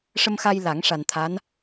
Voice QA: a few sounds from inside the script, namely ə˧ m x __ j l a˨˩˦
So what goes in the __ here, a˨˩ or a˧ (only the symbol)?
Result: a˧